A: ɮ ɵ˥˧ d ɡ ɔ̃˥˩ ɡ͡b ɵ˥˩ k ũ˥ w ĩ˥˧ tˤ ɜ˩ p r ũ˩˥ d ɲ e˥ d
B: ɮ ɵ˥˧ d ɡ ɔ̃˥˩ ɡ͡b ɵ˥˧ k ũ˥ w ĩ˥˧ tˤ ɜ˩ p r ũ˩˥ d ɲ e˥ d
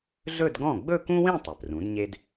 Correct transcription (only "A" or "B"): B